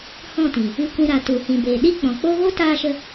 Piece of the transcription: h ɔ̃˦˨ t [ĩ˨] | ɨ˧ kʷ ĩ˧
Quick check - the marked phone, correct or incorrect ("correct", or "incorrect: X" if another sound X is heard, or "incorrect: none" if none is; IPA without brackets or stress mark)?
correct